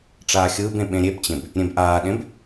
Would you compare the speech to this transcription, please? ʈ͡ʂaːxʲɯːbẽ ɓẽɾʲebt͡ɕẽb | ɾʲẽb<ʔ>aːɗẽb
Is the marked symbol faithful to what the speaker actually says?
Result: yes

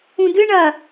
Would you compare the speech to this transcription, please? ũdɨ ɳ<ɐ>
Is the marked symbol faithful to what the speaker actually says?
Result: yes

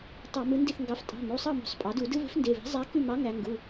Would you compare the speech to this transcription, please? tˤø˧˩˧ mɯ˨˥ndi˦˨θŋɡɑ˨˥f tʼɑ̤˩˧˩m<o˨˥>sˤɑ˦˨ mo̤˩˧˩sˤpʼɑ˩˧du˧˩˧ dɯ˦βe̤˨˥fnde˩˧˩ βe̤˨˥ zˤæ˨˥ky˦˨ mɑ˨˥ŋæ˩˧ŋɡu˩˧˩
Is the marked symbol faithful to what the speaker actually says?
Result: no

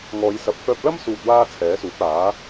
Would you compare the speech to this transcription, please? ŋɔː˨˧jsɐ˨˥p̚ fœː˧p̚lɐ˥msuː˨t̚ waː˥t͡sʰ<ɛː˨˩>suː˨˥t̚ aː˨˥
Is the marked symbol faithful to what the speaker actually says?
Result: no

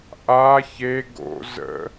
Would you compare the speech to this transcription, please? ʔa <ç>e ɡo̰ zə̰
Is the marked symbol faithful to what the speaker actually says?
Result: yes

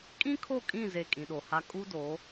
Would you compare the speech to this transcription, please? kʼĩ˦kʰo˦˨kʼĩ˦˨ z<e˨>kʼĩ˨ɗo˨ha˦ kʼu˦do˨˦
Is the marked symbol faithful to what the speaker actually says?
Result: no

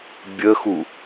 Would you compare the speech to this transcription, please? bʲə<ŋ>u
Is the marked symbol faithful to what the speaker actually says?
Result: no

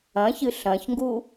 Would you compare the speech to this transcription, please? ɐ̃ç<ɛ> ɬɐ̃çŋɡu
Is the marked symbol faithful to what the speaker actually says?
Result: no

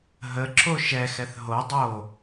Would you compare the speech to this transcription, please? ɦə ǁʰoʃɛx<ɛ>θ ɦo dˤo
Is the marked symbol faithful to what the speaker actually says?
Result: yes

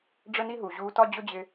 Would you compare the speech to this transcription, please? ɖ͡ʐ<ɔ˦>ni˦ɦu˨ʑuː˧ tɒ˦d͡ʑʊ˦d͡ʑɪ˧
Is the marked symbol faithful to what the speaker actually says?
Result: no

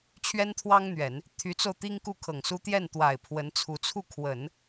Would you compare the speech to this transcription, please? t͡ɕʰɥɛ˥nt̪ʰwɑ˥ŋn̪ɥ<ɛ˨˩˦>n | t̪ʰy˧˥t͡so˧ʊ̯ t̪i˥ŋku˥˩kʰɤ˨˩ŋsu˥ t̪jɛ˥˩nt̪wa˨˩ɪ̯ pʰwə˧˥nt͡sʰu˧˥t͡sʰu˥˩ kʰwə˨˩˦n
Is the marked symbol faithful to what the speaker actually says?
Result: yes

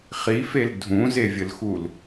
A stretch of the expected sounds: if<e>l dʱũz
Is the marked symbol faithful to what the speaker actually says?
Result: yes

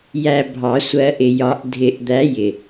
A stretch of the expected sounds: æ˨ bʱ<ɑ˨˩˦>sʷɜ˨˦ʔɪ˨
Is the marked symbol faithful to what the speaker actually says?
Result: yes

